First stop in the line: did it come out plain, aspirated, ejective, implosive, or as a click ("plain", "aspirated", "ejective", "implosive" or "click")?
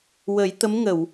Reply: plain